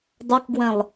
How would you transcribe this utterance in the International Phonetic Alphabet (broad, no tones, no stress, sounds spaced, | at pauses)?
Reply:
dˤ ɐ k ɡ w ɛ̃ lˠ